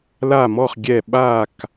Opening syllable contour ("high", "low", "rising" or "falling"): falling